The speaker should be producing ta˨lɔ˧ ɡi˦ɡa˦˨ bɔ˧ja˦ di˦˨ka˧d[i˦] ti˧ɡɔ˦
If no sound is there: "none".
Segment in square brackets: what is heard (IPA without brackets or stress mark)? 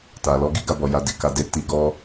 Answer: e˦